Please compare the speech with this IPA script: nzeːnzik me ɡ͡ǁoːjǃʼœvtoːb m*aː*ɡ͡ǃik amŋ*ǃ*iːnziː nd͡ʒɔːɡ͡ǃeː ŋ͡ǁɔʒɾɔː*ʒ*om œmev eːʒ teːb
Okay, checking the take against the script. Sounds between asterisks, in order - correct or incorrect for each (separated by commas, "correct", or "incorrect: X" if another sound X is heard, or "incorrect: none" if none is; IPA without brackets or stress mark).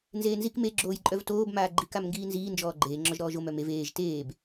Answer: correct, incorrect: ɡ, correct